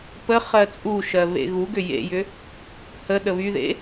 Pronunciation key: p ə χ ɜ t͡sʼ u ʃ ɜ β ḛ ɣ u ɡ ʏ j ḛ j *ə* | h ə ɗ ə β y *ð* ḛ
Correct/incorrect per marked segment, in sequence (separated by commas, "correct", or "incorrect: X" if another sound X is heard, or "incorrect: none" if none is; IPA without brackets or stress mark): incorrect: ʏ, correct